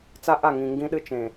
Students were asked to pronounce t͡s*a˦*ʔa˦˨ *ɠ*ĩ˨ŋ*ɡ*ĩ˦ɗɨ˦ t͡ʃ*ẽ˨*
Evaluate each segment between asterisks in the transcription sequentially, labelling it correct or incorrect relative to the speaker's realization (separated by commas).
correct, incorrect, correct, correct